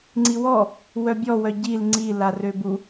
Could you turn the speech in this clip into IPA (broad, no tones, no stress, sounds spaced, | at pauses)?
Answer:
ŋ͡ǀ i w ɔ | w œ bʲ ɔ w œ ɟ i l ŋ͡ǀ i l a r ø b u